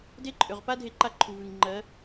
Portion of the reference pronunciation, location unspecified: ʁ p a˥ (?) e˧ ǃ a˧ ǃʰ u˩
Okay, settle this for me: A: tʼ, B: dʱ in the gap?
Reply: B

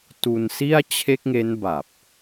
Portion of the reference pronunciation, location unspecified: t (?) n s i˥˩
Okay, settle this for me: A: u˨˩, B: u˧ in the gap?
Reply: B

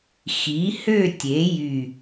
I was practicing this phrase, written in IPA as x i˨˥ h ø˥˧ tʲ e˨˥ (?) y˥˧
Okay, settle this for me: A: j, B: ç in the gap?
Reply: A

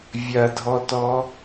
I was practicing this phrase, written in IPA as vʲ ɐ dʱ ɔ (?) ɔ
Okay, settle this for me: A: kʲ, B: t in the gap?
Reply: B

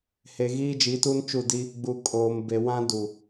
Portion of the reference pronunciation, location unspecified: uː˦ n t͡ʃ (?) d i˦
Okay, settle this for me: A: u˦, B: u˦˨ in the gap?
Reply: B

